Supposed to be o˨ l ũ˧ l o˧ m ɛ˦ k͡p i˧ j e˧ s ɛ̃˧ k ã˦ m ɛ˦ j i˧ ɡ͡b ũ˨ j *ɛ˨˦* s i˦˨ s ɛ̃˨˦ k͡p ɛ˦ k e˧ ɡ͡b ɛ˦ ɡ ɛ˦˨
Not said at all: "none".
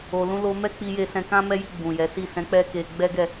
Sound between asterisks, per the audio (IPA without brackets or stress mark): ɛ˨˦